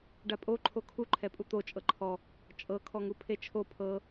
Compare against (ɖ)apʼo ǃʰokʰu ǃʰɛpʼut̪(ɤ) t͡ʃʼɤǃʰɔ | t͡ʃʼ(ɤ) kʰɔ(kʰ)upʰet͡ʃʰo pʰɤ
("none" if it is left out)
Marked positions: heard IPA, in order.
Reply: ɖ, o, ɤ, ŋ

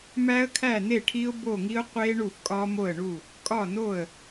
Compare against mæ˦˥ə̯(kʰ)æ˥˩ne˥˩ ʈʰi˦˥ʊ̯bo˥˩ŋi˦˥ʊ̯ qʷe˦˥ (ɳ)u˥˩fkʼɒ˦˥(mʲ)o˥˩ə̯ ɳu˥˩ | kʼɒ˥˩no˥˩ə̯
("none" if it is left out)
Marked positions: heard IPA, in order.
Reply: kʰ, ɳ, m

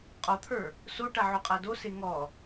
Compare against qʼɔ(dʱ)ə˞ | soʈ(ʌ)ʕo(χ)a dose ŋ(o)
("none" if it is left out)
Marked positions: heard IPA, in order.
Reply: t̪ʰ, a, qʼ, ɔ

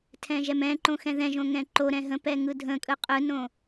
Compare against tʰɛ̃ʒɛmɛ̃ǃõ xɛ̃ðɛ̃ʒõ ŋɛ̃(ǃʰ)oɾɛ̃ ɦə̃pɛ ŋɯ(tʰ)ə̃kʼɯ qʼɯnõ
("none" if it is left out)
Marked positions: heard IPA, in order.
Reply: ǃ, dʱ

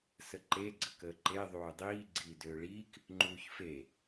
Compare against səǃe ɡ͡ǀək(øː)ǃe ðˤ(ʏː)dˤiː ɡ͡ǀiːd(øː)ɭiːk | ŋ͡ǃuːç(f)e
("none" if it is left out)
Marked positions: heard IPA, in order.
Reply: əː, uː, øː, f

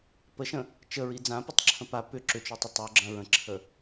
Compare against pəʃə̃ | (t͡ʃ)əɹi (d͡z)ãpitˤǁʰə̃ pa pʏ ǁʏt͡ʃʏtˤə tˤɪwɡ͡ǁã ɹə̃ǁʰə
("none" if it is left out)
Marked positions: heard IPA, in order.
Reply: t͡ʃ, d͡z

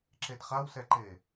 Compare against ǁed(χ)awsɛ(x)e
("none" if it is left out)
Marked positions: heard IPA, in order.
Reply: χ, ǃ

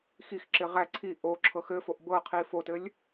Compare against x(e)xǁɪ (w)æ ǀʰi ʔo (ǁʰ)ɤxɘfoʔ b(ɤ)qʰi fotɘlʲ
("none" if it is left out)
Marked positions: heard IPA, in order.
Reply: i, ʁ, ǁʰ, ɤ

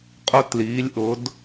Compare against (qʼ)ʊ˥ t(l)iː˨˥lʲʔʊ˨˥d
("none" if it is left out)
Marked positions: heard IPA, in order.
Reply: qʼ, l

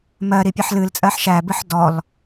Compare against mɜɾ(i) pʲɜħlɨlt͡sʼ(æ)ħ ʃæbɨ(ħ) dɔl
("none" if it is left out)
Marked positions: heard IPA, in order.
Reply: i, ɜ, ħ

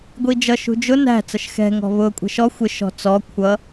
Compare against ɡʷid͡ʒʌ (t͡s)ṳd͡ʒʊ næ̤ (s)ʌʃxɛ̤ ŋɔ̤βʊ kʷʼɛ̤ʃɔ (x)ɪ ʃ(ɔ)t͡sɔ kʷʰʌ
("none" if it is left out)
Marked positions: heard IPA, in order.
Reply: ʃ, t͡s, xʷ, ɔ̤

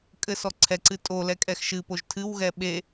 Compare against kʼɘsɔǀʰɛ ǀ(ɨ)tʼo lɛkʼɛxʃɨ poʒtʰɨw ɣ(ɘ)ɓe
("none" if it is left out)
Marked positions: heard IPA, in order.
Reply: ɨ, ɛ

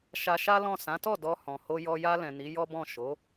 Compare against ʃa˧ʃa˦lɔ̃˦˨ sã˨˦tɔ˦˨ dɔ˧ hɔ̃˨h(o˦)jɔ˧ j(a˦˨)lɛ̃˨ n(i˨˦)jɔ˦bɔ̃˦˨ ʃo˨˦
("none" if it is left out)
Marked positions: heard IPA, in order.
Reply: o˧, a˧, i˨˦

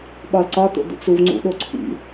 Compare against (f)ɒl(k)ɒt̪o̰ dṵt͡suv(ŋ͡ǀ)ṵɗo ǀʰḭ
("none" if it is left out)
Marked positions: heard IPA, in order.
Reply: ɓ, ǀ, ŋ͡ǀ

